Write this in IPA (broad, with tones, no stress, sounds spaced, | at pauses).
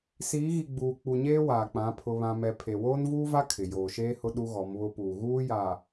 s iː˨˦ ɣ i˨ ɡ͡b uː˨ k͡p u˨ ɲ eː˦ w aː˨ k͡p ã˨˦ pʰ ʊ˦ β ã˦ m ɛ˦ pʰ e˨ w oː˦ n v uː˦ v a˦ kʰ ɪ˨ j oː˨ ʃ eː˦ h ʊ˦ ɗ u˦ ɣ ɔ˨˦ m β ʊ˦ p uː˨ ɣ uː˦ j a˨